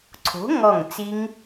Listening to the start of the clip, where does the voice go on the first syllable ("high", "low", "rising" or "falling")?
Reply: rising